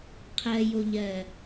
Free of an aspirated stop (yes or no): no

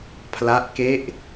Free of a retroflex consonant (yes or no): yes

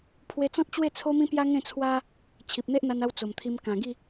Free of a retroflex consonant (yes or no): yes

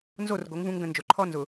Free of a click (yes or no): no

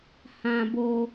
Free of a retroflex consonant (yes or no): yes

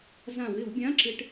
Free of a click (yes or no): no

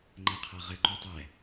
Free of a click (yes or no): no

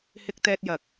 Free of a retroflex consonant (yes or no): yes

